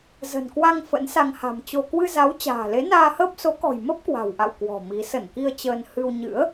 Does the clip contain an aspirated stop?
no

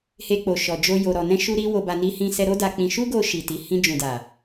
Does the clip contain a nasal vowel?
yes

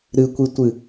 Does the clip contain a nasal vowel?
no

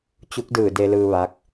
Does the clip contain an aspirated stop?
no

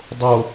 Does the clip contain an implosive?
no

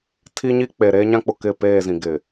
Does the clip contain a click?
no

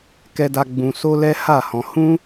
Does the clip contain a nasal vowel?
yes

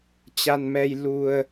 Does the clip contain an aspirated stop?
no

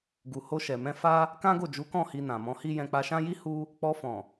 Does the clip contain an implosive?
no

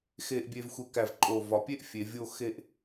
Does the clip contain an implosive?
no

